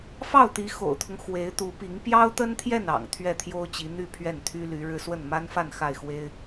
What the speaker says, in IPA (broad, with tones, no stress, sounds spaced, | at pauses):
f ɑ˥˩ ʊ̯ t̪ i˧˥ x o̰˨˩ ʊ̯ t̪ʰ ʊ˦ ŋ x w e˧˥ ɪ̯ t̪ u˧˥ p i˧˥ ŋ p j ɑ˥ ʊ̯ t̪ ə˥ n t̪ʰ j ɛ˥˩ n ɑ̰˨˩ ŋ t̪ʰ ɥ ɛ˥˩ t̪ʰ j o˥ ʊ̯ t͡ɕ i˧˥ n̪ y˥˧ pʰ ɥ ɛ˥˩ n t̪ʰ y˥ l y˧˥ ɻ ɻ̩˥˧ s w ə˥˩ n m a˥ n f a˥˧ n x a˥˩ ɪ̯ x w e˥ ɪ̯